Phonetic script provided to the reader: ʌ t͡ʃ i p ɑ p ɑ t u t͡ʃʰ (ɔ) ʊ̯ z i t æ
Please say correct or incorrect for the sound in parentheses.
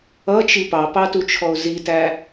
correct